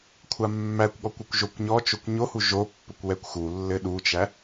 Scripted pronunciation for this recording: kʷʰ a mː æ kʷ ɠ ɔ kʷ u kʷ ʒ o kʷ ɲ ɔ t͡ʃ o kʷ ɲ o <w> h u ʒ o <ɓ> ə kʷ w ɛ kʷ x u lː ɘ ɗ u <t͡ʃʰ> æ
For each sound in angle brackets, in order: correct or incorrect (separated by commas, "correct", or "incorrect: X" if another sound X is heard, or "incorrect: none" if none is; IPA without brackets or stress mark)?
incorrect: none, incorrect: pː, incorrect: t͡ʃ